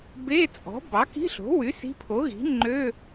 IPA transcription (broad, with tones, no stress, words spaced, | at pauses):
be˧˥˧t͡sʼɔ̤˩˥ bɑ˩˥ki̤˧˥˧ɬo̤˩˥wy˩˥ si̤˧˥˧ pʰo˩˥ɣi̤˩˥ ŋ͡ǃø˧˥˧